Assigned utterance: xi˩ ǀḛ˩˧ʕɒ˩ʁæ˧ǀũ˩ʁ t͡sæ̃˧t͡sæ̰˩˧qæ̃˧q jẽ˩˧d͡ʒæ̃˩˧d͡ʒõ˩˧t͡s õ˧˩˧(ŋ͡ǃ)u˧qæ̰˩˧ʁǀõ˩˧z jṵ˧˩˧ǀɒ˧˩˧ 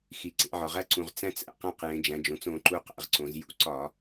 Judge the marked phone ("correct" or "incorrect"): incorrect